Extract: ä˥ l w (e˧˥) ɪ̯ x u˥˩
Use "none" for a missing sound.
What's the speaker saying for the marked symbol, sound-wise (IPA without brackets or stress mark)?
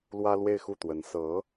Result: e˥˧